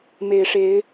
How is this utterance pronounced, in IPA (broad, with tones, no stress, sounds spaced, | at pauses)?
m e˨˩ ɪ̯ ʂ e˨˦ ɪ̯